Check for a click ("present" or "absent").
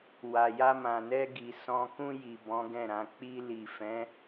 absent